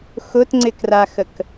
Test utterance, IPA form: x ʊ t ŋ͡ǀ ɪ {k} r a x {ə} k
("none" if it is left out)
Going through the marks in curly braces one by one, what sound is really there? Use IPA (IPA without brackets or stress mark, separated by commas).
k, ə